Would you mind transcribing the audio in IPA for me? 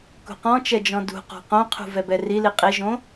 k ṳ q ɔ̃ t͡ʃ ɛ d͡ʒ ɔ̃ d ṳ q ɔ̤ q õ qʰ ṳ v ɛ b ɛ r i l i qʼ i ʒ õ

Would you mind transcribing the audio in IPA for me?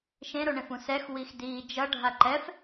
ʃ ẽ ɾ o ɳ ẽ f ũ s ɛ x w i x d iː d͡ʒ ʌ ɖʱ a ǃ ɛ f

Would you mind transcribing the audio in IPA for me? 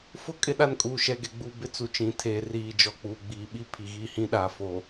f ʊ˦ kʼ ɪ˦ ɗ a˦ n kʼ uː˨ ʃ ɛ˨ ɡ ɛ˨ ɡ͡b u˨ b ɪ˦ t͡s u˨ t͡ʃ ĩ˨˦ tʰ eː˨ r iː˨ d͡ʒ ɔ˨ k͡p uː˨ ɡ͡b iː˨ ɓ i˦ pʰ i˨ ɣ i˦˨ h ĩ˦ ɗ a˨ f o˨

